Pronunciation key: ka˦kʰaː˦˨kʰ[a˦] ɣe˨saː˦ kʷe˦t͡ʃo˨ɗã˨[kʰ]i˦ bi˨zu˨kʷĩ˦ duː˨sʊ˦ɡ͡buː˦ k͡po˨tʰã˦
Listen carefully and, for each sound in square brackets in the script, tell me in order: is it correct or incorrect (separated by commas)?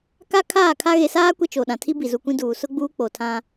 correct, incorrect